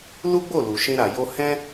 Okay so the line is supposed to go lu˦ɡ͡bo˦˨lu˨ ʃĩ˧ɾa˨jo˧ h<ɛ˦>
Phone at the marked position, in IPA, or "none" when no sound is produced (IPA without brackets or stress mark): ɛ̃˦